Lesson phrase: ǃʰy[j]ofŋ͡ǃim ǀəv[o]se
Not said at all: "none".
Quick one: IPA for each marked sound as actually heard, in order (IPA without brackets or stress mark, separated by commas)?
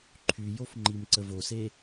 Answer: j, o